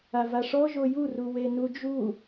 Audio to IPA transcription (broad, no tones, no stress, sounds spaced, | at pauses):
a v a ʂ ɔ ʒ o j u r u w e n u d͡ʒ u